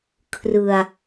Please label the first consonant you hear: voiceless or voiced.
voiceless